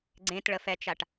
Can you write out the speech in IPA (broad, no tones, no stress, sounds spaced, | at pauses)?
ɡ͡ǀ ẽ t ɭ ə f ɛ t͡ʃ a ʈ